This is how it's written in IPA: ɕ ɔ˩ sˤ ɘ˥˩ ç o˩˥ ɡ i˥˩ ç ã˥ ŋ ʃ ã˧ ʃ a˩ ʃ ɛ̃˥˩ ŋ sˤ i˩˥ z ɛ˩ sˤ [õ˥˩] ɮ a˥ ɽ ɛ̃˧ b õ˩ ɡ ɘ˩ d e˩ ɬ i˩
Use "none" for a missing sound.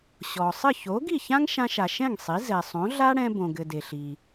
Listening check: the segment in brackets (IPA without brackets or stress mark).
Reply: õ˩˥